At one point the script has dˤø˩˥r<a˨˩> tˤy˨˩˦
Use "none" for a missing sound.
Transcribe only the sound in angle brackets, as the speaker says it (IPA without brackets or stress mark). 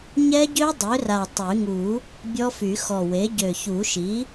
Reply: a˨˩